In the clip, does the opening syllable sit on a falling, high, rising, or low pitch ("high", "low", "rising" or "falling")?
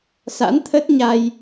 rising